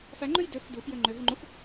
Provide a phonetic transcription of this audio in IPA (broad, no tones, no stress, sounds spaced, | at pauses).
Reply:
f æ ŋ͡ǃ ʉ j d ø f d u f j ø ŋ͡ǃ ø ɦ y ŋ͡ǃ u f